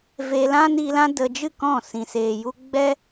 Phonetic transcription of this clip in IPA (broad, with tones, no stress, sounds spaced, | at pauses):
v e˧ l ã˦ n i˧ l ã˦ d ə˧ d͡ʒ ɨ˦˨ k ɔ̃˦˨ s ĩ˨ s eː˨ j u˧ ɡ͡b ɛ˦